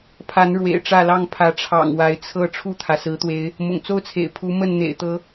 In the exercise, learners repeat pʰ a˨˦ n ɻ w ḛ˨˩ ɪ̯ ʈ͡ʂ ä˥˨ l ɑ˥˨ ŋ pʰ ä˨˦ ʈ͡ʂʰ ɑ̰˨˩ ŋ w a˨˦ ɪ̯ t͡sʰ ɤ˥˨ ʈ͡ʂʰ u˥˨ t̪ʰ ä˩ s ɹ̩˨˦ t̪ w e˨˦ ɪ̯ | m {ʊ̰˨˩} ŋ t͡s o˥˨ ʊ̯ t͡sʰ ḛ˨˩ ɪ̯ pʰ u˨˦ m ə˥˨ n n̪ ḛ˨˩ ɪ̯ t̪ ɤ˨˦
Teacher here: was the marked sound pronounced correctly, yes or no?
yes